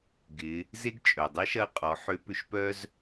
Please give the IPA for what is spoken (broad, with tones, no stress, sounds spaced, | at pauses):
ɡ ɪ˩˧ | z e˥ ɡ t͡ʃʼ œ˩ dˤ ə˧˥ ʃ ɐ˧˥ qʼ ɔ˩˧ ħ ø˧˥ p ʏ˧ ʃ p œ˥ z